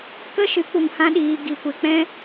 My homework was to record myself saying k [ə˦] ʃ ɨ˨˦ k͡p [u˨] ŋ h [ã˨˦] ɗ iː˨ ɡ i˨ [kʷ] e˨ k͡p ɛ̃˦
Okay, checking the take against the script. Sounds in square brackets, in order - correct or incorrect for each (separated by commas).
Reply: correct, correct, incorrect, correct